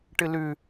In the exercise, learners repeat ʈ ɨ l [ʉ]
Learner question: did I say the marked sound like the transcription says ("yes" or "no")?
yes